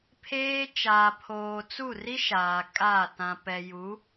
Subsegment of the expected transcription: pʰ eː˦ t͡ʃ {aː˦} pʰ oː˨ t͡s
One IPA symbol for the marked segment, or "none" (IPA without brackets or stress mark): aː˨